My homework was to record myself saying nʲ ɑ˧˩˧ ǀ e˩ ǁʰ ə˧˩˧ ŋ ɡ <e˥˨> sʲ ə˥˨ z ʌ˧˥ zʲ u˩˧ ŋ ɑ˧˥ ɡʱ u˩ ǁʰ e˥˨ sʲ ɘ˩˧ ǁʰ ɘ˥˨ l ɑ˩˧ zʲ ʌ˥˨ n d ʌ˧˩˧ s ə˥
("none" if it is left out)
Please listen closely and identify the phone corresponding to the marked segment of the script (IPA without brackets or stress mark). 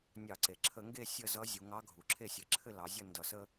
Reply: e˥˨